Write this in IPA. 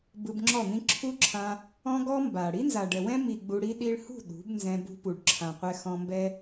b ɯ˧ b ŋ͡ǁ ɔ˦˨ n̪ ĩ˦ ǁʰ u˦ ǁʰ ã˧ | ɔ̃˦ ɡ ɔ˦ m b a˨ ɽ i˦ n z a˨ ɖ ɛ˨ w ɛ̃˦ m i˨ ɡ͡b u˧ ɽ i˦ ɗ i˧ ɭ h ṳ˦˨ ɗ ṳ˨˦ b n z ɛ̃˧ b ṳ˧ p u˨ ɖ ǁʰ ã˨ qʷ ɛ˧ x ɔ̃˧ m b ɛ˦

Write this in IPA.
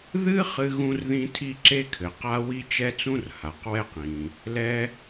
ð ɨ˥ χ ɨ˥ ɣ ũ˥ r ð ĩ˥ tʰ i˥ ǁ e˥ kʰ ɘ˩ q a˥ w i˥ t͡ʃ ɛ˥ t͡s ũ˥ r h a˩ q w ɛ˥ q ĩ˩ | l ɛ˥

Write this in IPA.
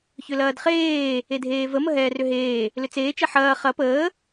ç ʏ l ɐː d χ eː | e dʱ eː v ə m ə ɦ ɛː r ʏ ɦ eː | l ʏ t͡s eː t͡ʃ ɛ ħ ɐː χ ɐ p əː

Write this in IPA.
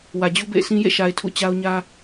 w ä˨ d͡ʑ u˦ b ḛ˦˨ ɪ̯ sʰ ĩ˦ j ḛ˦˨ ʃ a˨ ɪ̯ tʰ ṵ˦˨ t͡ɕ a˦ ʊ̯ ɲ ä˦

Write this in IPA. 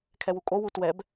kʰ ɛ w u kʼ o w u t w ɛ b

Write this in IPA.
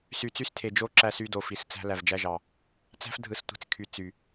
s y˨ t͡s y˦ s tʰ e˨ d͡ʒ o˦ ǁ æ˦ s y˦ d o˨ f i˨ s t͡s æ̤˦ l æ˨ v d͡ʒ æ˦ ʒ ɑ˨ | t͡s æ̤˦ f dʱ ɯ˨ s tʷ i̤˨ t͡s kʰ y˨ t͡s y˨

